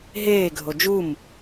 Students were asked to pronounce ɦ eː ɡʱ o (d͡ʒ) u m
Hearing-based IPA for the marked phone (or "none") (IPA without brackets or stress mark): d͡ʒ